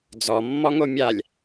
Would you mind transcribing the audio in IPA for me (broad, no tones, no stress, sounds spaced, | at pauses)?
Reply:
d͡z ɔ mː ɔ ŋ o mʲ a lʲ